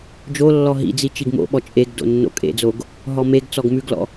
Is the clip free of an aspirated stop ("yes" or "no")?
yes